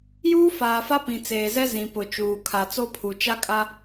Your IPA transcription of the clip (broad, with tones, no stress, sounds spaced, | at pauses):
j uː˦ f aː˨ f a˦ p ĩ˨ t͡s eː˨ z ɛ˦ z ĩ˨ p ʊ˨ t͡ʃ uː˨ kʰ a˨ t͡s o˦ pʰ u˨ t͡ʃ a˦ kʼ a˦